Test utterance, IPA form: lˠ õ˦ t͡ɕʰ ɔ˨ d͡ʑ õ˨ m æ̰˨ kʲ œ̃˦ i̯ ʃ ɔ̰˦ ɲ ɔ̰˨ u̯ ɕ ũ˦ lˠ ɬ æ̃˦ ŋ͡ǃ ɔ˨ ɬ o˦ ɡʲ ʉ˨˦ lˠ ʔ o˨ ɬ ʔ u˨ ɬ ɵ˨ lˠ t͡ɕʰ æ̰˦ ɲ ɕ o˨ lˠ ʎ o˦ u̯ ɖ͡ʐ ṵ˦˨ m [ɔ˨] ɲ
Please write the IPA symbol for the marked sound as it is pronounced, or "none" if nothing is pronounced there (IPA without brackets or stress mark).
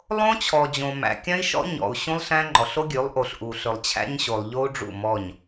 ɔ˦˨